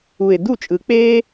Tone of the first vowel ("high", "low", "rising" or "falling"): low